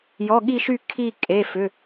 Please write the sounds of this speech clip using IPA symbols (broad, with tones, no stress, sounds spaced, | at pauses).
j ɔ˩˧˩ ɠ i˦˨ ʃ y˦˨ kʰ i˦˨ kʼ e˩˧˩ f ʏ˩˧˩